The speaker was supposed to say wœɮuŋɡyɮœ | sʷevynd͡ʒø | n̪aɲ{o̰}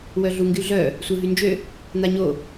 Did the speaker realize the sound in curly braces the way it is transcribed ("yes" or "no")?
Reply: no